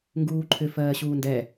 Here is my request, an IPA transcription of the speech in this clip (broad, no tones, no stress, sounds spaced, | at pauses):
ŋ ɡ uː ǃʰ ʏ f ɜː ɕ uː n d ɛ